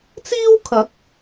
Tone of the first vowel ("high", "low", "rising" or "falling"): high